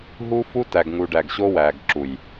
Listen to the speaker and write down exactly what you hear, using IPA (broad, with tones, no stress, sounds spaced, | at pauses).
ɦ u˦ f u˦ t æ˨ ɡ ŋ u˨ ɖ æ˨ ɡ ɕ o˦ w æ˨ ɡ ǁ u˨ j